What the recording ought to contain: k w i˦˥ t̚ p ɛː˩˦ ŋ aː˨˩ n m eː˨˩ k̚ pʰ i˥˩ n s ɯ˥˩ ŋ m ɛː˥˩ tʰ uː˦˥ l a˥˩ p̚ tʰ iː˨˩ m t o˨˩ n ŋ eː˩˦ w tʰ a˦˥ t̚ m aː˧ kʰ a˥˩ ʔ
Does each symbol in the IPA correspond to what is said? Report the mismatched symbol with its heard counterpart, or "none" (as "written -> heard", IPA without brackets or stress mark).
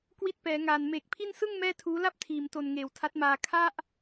none